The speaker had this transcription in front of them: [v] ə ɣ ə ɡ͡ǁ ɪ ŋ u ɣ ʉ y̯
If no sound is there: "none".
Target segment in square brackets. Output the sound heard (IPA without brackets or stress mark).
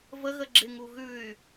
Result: v